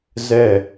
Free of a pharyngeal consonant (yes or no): yes